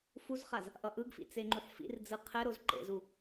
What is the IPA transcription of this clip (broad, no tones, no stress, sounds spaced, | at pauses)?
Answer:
f u z χ a z | ʔ ʌ ʔ ɯ ɡ f ḭ t͡s e ŋ͡ǃ u ħ f ḭ r d͡z ɯ qʰ ɛ ɾ o z ǃ ḛ z u